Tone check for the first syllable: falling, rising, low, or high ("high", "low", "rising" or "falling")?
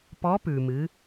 rising